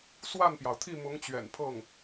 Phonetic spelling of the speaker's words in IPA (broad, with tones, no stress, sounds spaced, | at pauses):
s w a˥˩ n p j ɑ˩ ʊ̯ t̪ʰ i˥˩ m ʊ˧˥ ŋ t͡ɕ ɥ ɛ̰˨˩ n pʰ ɤ˥˩ ŋ